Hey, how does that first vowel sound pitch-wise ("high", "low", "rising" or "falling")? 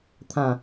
falling